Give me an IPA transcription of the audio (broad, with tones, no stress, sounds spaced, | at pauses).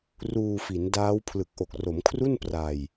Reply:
r uː˧ f i˩˦ n d aː˦˥ w pʰ l ɯ˨˩ k̚ ʔ o˨˩ k̚ r o˩˦ m kʰ r u˥˩ n p r a˧ j